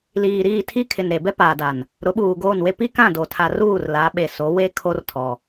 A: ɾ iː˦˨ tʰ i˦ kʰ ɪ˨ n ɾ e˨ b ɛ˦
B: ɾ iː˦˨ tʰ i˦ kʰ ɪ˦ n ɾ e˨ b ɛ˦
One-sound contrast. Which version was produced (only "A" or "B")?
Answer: A